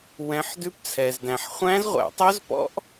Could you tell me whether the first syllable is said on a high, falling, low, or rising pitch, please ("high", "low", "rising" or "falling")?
rising